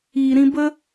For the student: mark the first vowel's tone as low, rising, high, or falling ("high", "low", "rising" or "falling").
low